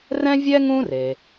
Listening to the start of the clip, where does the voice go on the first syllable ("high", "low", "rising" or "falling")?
high